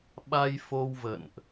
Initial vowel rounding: unrounded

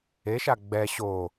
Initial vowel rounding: unrounded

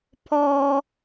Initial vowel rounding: rounded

